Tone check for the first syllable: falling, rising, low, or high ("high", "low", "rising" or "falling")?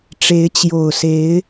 rising